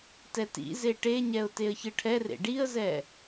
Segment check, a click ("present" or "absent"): absent